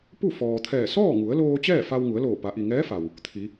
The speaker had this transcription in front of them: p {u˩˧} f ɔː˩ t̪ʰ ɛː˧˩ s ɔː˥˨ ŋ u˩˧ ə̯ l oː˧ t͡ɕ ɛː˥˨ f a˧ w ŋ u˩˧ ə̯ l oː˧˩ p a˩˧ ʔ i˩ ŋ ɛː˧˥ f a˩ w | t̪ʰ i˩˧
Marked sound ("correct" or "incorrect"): incorrect